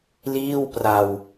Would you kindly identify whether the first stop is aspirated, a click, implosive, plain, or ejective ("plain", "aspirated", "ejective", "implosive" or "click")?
plain